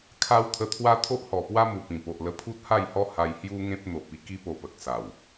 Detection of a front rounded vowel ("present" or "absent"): absent